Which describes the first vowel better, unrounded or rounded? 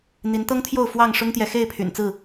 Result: unrounded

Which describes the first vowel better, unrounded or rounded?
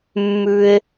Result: rounded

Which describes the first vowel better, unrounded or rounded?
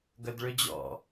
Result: rounded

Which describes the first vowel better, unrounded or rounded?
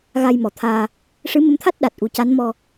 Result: unrounded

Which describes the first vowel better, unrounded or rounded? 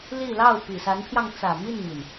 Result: unrounded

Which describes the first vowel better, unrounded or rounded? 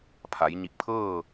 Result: unrounded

